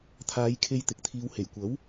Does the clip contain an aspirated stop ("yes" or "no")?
yes